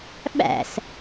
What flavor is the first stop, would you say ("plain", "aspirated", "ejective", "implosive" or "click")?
implosive